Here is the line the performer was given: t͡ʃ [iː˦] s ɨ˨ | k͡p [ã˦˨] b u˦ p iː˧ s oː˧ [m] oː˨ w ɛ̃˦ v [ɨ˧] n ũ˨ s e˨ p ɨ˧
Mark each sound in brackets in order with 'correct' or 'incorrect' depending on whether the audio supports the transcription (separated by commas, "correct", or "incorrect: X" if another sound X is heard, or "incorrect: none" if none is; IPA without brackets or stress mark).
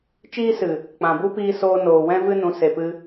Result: correct, incorrect: ã˨, incorrect: n, incorrect: ɨ˦